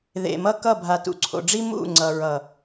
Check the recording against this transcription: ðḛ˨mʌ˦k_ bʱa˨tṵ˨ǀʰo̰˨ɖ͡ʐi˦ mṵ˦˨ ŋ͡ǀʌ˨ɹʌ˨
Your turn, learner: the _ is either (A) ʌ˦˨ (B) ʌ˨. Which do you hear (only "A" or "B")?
A